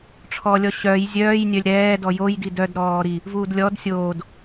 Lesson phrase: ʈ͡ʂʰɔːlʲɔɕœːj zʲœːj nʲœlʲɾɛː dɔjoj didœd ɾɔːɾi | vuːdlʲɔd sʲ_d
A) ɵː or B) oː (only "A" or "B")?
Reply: B